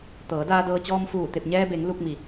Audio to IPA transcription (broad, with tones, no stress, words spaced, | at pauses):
t̪ɤː˩˧daː˧dɤː˧t͡ɕɔː˧m fuː˧˩t̪e˧˩p̚ɲɛː˧be˩˧ŋ lu˧k̚ mi˩